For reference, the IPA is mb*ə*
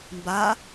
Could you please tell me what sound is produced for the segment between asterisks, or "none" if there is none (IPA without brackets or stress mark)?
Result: a